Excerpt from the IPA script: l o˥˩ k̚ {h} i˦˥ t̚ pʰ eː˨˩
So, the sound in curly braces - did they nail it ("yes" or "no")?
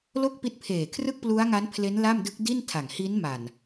no